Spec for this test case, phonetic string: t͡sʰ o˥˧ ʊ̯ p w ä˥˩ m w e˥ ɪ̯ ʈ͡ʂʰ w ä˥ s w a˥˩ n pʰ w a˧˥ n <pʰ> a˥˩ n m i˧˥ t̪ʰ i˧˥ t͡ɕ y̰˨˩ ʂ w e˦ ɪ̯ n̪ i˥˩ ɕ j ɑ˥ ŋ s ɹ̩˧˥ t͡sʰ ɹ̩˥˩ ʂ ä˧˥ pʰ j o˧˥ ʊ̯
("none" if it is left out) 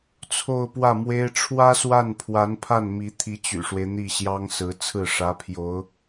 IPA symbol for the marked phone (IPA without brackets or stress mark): pʰ